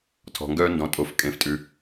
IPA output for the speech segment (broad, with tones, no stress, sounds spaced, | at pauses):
tʰ ɔ̤˨ ŋ ɡ œː˦ n d ɔ̃˩˥ tʼ o˩˥ f kʼ ẽ˨ f tʼ ʉ˨